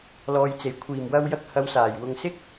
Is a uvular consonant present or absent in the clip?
absent